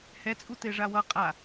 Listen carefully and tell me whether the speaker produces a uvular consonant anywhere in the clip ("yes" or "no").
yes